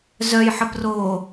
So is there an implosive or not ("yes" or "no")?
no